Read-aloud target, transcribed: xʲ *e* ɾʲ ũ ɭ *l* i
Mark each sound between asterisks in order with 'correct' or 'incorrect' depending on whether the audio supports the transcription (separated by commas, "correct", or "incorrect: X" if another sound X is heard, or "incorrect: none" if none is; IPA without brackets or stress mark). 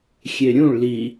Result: correct, correct